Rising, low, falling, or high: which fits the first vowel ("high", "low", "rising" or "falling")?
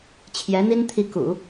rising